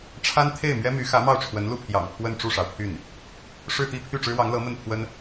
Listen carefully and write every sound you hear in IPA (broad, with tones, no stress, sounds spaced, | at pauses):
ʈ͡ʂʰ a˥ n t̪ʰ e˥˩ ɪ̯ m ɥ ɛ˥ m y˧˥ x ä˧˥ m ɑ˥˩ ʊ̯ ʈ͡ʂʰ w ə˧˥ n l u˥˩ pʰ j ɑ̰˨˩ ŋ pʰ w ə˥˧ n ʈ͡ʂ u˥˩ ʂ ɑ˩ ʊ̯ pʰ y˥˩ n | ʂ ɻ̩˥˧ t̪ i˥˧ pʰ y˥˩ ʈ͡ʂ ɻ̩˥ w ɑ˧˥ ŋ l ɤ˧˥ m ə˥˩ n pʰ w ə˥ n